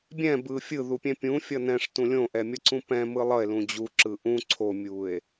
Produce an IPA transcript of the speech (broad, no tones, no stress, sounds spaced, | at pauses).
bʲ ɛ̃ b ɯ fʲ ɯ ð u pʲ ɛ̃ pʲ ũ fʲ ʌ n ɛ̃ ʂ t ũ lʲ õ ʔ ɛ mʲ ʌ ǀ ũ p ɛ̃ m ɯ lˠ ʌ e̯ l ũ d͡ʑ u ǁ ɯ ʔ ũ ǀʰ o mʲ u e̯